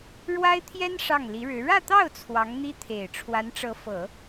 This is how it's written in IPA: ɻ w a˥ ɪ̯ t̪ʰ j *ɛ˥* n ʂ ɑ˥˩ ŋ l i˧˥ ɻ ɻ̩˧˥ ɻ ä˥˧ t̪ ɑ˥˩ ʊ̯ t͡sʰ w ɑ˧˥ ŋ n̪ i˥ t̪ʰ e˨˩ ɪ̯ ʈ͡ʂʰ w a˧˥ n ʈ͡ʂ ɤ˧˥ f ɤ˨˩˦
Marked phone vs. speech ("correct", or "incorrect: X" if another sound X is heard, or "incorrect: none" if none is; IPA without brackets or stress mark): correct